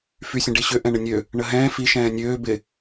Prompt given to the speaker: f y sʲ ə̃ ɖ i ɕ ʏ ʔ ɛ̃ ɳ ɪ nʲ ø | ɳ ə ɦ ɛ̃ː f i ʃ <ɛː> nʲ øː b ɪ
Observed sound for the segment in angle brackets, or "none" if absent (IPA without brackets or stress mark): ɛ̃ː